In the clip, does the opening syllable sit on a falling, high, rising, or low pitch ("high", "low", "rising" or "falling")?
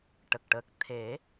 low